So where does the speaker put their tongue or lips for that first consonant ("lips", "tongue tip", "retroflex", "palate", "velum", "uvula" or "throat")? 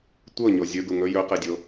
tongue tip